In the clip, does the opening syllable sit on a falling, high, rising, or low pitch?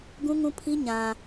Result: high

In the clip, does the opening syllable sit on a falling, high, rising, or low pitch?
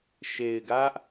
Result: low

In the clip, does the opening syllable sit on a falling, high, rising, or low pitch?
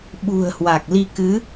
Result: low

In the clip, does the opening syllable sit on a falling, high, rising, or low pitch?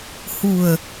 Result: low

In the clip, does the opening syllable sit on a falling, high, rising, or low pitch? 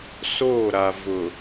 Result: falling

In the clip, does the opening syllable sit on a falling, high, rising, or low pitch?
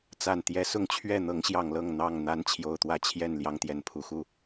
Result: low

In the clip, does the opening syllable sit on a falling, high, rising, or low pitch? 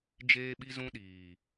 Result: high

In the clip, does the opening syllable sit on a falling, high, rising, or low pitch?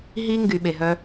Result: high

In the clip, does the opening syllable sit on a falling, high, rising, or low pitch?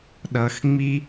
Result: low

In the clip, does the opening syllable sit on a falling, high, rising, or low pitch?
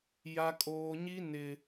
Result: high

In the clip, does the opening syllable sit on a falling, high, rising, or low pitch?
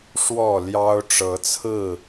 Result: falling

